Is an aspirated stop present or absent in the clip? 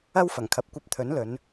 present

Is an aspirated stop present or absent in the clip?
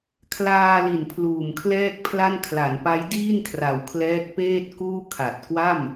present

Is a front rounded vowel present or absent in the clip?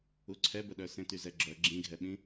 present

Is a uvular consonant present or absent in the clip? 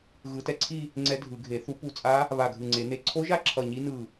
absent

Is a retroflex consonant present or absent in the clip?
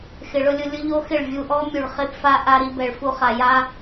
present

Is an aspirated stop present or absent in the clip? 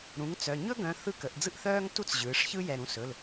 absent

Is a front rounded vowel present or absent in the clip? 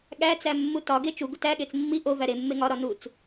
absent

